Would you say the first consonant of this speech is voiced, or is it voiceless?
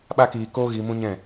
voiced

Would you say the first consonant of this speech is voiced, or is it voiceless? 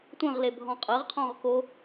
voiceless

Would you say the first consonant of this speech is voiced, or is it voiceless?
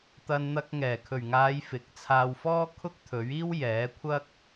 voiceless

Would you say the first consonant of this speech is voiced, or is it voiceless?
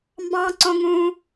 voiced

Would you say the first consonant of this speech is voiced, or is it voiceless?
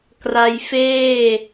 voiceless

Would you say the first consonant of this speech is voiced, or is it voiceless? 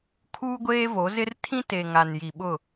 voiceless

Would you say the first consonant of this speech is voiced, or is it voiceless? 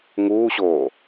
voiced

